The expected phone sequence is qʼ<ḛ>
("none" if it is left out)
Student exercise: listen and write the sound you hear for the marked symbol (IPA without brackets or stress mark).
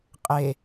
e